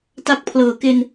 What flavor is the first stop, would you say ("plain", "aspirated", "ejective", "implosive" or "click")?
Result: plain